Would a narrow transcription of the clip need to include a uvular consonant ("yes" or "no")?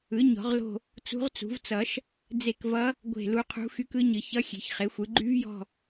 yes